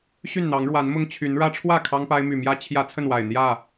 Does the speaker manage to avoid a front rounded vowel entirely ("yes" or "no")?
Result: no